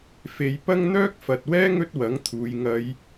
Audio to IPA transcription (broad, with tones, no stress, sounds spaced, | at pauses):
f e˨˧ j p ɐ˥ ŋ n̪ œː˥ k̚ f ɐ˨ t̚ w ɛː˥ ŋ ɵ˥ t̚ w ɐ˨˥ ŋ t̪ʰ uː˨˧ j ŋ ɐ˨˧ j